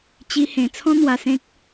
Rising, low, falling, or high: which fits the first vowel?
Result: high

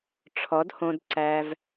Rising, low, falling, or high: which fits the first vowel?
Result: rising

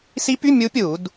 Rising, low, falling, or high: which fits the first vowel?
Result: rising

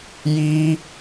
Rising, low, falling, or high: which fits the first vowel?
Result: high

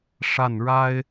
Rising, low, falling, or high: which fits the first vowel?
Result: falling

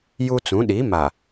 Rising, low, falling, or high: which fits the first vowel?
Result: high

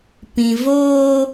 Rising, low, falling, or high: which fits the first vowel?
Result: low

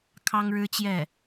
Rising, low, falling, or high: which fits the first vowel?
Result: high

